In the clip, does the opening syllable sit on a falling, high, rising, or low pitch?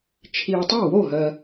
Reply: low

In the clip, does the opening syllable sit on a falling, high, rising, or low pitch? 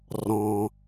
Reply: low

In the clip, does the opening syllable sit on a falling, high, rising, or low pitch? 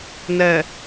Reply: low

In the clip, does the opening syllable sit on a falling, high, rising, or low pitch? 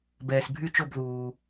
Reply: low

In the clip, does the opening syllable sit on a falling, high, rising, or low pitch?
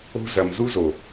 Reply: high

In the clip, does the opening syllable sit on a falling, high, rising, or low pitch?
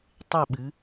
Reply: falling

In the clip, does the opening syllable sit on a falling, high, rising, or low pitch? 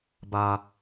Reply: high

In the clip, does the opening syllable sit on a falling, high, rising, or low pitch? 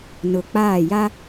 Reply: low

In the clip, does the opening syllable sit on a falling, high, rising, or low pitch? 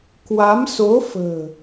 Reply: rising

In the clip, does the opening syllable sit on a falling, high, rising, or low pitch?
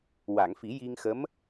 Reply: low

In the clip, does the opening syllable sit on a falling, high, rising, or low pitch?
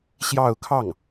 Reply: falling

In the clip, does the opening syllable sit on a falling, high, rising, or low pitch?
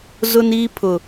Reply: high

